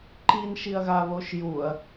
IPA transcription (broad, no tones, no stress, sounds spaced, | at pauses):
ǃ i n ʃ i ɐ̯ ɣ a β o ʃ j u ɐ̯